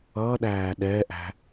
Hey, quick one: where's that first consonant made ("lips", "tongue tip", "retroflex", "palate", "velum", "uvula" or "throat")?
tongue tip